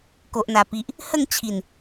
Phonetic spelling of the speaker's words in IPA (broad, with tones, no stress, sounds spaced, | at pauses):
k o˨ ʔ n̪ a˨˩ p i˨ ʔ | h ə˥˧ ŋ t͡ɕʰ i˨˩ n